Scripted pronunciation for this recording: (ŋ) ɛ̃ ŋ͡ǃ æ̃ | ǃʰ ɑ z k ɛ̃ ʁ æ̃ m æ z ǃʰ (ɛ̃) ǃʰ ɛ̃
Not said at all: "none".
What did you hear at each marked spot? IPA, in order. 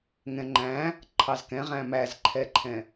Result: ŋ, ɛ

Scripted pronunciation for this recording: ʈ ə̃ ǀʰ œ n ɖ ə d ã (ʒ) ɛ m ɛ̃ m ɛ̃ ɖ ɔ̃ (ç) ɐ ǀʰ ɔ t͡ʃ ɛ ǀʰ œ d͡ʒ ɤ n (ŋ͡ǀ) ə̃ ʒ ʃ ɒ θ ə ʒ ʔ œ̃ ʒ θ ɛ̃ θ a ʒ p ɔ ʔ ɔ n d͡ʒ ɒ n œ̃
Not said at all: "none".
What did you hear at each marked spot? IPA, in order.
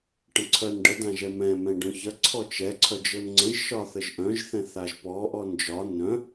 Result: ʒ, ç, ŋ͡ǀ

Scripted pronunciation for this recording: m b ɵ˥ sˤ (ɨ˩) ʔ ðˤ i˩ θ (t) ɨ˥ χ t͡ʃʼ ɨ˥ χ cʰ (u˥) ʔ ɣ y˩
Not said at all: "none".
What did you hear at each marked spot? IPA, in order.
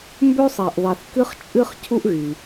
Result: i˩, k, u˥

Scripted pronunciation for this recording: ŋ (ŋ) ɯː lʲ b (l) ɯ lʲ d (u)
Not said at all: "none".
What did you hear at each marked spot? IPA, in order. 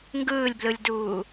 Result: ɡ, l, uː

